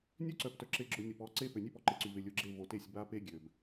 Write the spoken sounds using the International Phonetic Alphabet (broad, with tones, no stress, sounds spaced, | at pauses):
nʲ ø˦ ǀ œ˨ p t œ˨ ǁ e˨ ɡ͡ǁ ʊ˨ nʲ ʊ˨ p ɔ˨˦ ǀ e˦ p ø˨ nʲ ø˦ p ɔ˨ ǃ e˨ ǀ y˨ v ɪ˨ lʲ ʊ˨ ɡ͡ǁ e˦˨ v o˨ t e˦˨ sʲ b a˦ p e˦ ɡʲ ø˨ b